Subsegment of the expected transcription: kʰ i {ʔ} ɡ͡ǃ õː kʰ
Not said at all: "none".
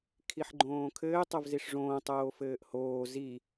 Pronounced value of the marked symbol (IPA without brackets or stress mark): ħ